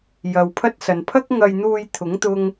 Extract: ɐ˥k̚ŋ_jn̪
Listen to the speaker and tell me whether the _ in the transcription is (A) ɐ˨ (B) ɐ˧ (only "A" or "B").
B